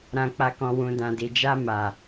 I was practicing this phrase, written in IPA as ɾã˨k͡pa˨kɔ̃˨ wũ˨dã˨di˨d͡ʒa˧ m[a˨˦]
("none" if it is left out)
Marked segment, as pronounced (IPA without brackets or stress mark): a˨